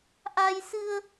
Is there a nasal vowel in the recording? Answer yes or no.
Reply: no